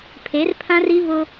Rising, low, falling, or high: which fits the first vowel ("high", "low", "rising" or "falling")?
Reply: rising